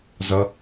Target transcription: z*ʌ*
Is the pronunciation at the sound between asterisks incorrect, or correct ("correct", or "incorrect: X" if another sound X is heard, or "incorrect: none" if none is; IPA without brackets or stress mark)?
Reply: correct